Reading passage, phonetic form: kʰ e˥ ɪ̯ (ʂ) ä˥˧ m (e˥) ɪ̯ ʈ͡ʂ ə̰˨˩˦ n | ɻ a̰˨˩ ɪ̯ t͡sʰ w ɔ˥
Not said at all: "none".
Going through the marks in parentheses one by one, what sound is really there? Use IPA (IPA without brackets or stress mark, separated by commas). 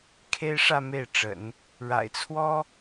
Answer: ʂ, e˥˩